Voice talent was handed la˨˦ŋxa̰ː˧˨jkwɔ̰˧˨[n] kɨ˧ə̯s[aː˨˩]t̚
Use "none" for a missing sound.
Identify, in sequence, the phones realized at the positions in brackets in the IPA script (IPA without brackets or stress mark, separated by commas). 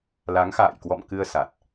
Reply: m, a˨˩